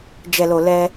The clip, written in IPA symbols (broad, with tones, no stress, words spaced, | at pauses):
d͡ʒɛ˨lo˨ lɛ˦